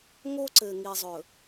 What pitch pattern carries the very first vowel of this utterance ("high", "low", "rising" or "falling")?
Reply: high